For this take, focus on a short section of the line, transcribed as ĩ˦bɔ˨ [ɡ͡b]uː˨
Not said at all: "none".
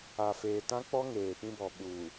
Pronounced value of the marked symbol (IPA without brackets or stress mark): ɓ